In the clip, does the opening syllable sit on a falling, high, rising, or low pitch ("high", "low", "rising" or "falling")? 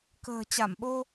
low